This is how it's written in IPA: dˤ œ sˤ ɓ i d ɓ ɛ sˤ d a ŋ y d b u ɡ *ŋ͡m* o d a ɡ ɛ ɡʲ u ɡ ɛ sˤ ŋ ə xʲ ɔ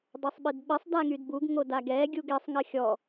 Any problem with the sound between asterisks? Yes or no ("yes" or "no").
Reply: yes